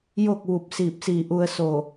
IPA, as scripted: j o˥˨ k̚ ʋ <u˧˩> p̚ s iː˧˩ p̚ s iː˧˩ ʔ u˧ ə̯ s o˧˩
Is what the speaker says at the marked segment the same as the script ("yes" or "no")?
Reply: yes